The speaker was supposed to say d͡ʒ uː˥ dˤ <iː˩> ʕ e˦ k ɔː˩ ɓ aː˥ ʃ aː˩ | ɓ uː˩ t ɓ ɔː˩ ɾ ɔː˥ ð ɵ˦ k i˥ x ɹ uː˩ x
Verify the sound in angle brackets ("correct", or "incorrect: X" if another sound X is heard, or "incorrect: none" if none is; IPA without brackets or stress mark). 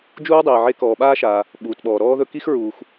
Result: correct